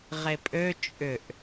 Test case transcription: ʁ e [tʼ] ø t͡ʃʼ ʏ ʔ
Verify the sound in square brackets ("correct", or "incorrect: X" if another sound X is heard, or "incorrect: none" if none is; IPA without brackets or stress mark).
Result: incorrect: pʼ